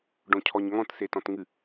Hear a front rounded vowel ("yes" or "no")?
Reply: no